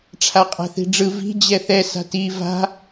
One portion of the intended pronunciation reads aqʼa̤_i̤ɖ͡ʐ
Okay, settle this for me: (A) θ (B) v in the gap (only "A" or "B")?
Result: A